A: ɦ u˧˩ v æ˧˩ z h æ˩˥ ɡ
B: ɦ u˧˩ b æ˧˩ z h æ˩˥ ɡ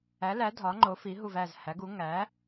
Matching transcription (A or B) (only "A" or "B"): A